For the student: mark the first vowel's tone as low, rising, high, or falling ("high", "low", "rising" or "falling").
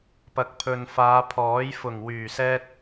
low